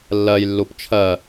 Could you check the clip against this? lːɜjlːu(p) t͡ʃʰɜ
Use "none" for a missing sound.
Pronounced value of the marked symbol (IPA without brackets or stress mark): p